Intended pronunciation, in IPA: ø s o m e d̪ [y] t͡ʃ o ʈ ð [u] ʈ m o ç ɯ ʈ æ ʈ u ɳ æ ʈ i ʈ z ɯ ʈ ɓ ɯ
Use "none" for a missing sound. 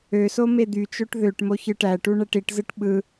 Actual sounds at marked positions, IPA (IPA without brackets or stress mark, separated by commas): y, ø